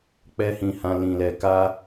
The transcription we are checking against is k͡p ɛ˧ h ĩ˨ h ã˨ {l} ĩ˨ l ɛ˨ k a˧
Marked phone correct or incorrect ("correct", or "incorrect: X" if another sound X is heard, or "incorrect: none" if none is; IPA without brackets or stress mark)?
correct